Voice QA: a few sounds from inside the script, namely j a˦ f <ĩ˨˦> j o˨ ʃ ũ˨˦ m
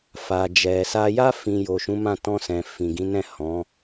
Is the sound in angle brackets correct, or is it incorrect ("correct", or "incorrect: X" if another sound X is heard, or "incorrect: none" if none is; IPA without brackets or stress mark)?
incorrect: ĩ˧